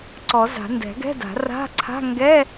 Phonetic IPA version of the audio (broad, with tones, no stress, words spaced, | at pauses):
ǀɔ˨˩˦za̤˨˩˦ ndɛ̤˨˩˦ɡɛ̤˧˥˧da̤˨˩˦ ra̤˧˥˧ǀʰa̤˧˥˧ ŋɡɛ˧˥˧